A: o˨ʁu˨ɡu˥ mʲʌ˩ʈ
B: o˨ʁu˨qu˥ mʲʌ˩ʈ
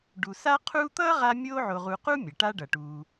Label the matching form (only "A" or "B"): B